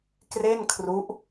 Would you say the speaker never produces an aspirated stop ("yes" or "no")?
no